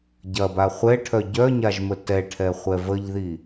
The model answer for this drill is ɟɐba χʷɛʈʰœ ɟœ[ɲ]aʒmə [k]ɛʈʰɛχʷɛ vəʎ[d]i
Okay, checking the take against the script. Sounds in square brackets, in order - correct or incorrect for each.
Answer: correct, incorrect, incorrect

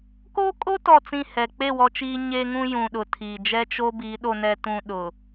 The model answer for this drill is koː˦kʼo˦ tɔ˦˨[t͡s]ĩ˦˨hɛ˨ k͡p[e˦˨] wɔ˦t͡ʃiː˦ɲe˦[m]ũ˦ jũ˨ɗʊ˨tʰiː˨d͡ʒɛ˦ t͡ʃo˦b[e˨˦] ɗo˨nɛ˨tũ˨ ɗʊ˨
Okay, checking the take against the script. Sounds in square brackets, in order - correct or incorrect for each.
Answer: correct, correct, incorrect, incorrect

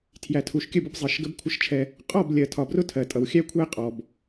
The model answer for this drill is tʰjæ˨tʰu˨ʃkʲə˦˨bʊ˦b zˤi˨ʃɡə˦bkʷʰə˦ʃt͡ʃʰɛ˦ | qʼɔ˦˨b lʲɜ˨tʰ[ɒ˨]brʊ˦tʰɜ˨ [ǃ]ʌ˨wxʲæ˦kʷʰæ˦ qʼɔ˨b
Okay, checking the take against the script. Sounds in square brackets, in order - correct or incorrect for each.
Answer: correct, incorrect

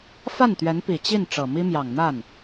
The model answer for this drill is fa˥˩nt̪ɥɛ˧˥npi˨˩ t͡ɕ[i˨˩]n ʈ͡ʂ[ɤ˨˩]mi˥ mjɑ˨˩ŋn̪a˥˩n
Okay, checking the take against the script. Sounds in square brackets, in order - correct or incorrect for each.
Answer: incorrect, correct

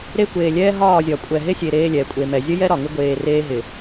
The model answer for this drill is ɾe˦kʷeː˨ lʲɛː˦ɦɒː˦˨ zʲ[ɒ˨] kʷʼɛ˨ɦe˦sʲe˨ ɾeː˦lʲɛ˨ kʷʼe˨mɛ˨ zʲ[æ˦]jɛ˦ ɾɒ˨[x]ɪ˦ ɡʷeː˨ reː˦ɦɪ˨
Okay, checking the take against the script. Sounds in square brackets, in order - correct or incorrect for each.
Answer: correct, incorrect, incorrect

